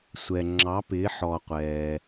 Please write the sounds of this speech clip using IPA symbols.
sʷ ɛ˩ ŋ͡ǁ ɑ˩˧ p ɪː˩˧ ħ ɔ˩ qʷ ɛː˩

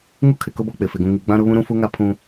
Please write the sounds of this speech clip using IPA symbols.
ŋ u˦ kʰ ɪ˨ k ʊ˦ b ɔ˦ k͡p ɪ˨ f e˨ ɡ ũ˨ ŋ i˨ ɡ͡b ã˦ ɾ ʊ˦ β ũ˦ ɾ ũ˦ f u˦ ŋ a˦ pʰ ũ˦

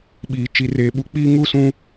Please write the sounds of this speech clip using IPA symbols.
ɓ iː˨ t͡ʃ i˨ r eː˨ ɓ u˨ k͡p iː˦ ŋ u˦ s ũ˦

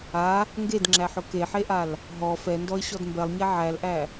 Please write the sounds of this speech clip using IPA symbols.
a | ŋ ɡ e d ŋ͡ǁ æ ħ ʊ k e ħ e ʔ a l | ɦ ɔ f ɛ n d ɔ ɪ̯ ɕ ɔ d m b ɛ lˠ ɲ ɛ ʕ æ l ʔ æ

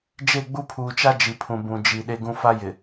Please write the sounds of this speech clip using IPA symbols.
d͡ʒ e˦˨ ɡ͡b u˦ pʰ uː˨ t͡ʃ a˦ d͡ʒ i˨ pʰ ũ˨ b ũ˨ d͡ʒ i˨ ɗ e˦ ɡ ũ˦ f a˦ j ɪ˨

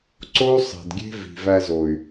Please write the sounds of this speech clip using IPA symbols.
ǀ o˦ u̯ sˤ e̤˨ d ɡʲ e̤˦ v i̤˨ v æ˧ z o˨ y̯

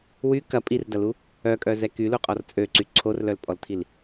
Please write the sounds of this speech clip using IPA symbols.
w y k ɐ pʼ i r d ɐ l u | œ kʼ œ z ɛ k y l u qʼ ɔ r t͡sʼ ø ǀ y ǀʰ o r l œ l pʼ ɔ l tʰ i l

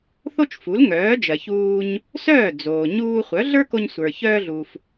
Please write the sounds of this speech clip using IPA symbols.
θ o˥ t͡ʃ f u˩˥ l ŋ œː˩˥ d͡ʒ ɜ˩ ç uː˧ ɲ | s œː˥˩ d͡z oː˩ ɲ uː˧ χʷ œ˩˥ ɮ ə˞˥ k o˧ ɲ sʷ ə˞˩ ç œː˧ ɮ u˩ f

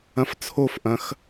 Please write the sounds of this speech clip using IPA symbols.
ɐ̃ f t͡sʰ o f ʔ ɐ̃ x

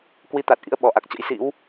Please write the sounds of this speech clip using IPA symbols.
k w i˧ t̪ a˨˩ t̚ ʔ ḭ˧˥ ə̯ ɓ ɔ˧˩ ʔ a˨˩ k̚ t͡ɕ ə̰˧˥ j s ḭ˧˥ w

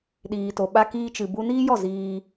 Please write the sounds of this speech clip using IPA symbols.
ɗ iː˨ t o˨ ɓ a˧ k iː˧ t͡ʃ ɨ˨ b u˧ n iː˦ j ɔ˦˨ z iː˧

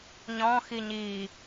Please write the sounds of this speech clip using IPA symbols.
ɲ ɔ̃ x i ɲ i

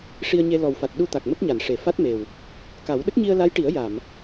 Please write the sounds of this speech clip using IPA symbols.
ʂ i˧ ə̯ ɲ e˧ l ɔ˨˩ w f a˨˩ t̚ ɗ u˧ t̪ a˨˩ k̚ m ə˦˥ k̚ ɲ a˨˩˨ n ʂ e˨˩˨ f a˦˥ t̚ m e˨˩ w | k a˨˩˦ w ɗ ə˦˥ k̚ ɲ i˧ ə̯ l a˧˥ j ʈ i˨˩˦ ə̯ j a˨˩˨ m

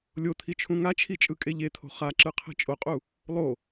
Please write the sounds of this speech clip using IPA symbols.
lʲ o t̪ʰ i t͡ʃʰ ũ ŋ a t͡ʃʰ i t͡ʃʼ ɯ kʼ e ʎ e t̪ʰ o̤ χ a ǁ ɯ qʰ ɛ̤ t͡ʃʼ o qʼ u | lˠ o

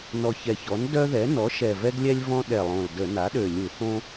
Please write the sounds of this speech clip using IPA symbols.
n ɔ˨˩ ç ɛ˨˩ ç ɔ˩˥ n d œ˦ ð ɛ˩˥ n ɔ˩˥ ʃ ɛ˨˩ v ɛ˦ ɡ lʲ ɛ˦ lʲ v ɔ̃˦ ɗ ɛ˨˩ lˠ õ˨˩ l d ə˧˩˧ n a˩˥ ɗ ø˨˩ lʲ u˧˩˧ θ õ˦

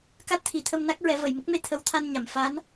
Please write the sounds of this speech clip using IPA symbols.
k a˦˥ t̚ t̪ʰ i˨˩˦ t̪ʰ ə˧ m n a˦˥ k̚ ɹ ɛ˨˩˦ v ə˨˩˨ j m ə˦˥ k̚ m e˧ t̪ʰ ə˧˥ w t̪ʰ a˧ n ɲ a˨˩˨ m f a˧˥ n

